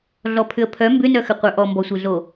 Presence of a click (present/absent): absent